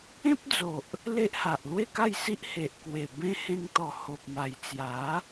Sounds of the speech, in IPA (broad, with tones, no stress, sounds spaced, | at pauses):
ẽ˦ p̚ d͡z o˨ ʔ | l e˦ ʔ h a˨ ʔ l w e˥˧ k a˥˧ j s i˦ ʔ h e˨ ʔ k w e˨˩ b ẽ˦ h ẽ˧ ŋ t̪ ɔ˨˩ h o˨ p̚ m a˨˩ j t͡s j a˨˦